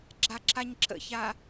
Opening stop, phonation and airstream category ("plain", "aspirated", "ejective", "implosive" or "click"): click